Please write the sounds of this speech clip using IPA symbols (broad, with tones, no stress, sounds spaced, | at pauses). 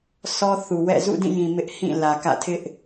s ɔ˦ θ u˨ w ɛ̰˦˨ z ṵ˦˨ d ĩ˦˨ j ĩ˨ m ɪ˦ ʔ h ĩ˦˨ l ä˨ k ä̰˦˨ tʰ ɪ˦ ʔ